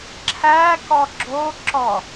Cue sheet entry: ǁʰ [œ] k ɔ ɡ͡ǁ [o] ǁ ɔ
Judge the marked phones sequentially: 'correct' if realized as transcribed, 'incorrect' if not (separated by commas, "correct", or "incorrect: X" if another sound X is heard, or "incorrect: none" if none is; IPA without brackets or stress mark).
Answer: incorrect: æ, correct